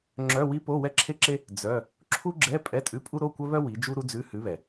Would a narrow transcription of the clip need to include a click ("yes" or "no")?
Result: yes